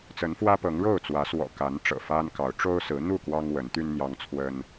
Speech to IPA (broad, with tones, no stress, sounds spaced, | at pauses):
t͡s ə˨˦ n f w ä˦ p ɤ˨˦ ŋ ɻ o˥˨ ʊ̯ t͡s w ä˨˦ s w ɔ̰˨˩ k a˨˦ n ʈ͡ʂ ɤ̰˨˩ f a˦ n k ɑ˨˦ ʊ̯ ʈ͡ʂ o˦ ʊ̯ s ɹ̩˨˦ n̪ u˥˨ k w ɑ˦ ŋ w ə˨˦ n t̪ y˦ n n̪ j ɑ˦ ŋ t͡sʰ w ə˦ n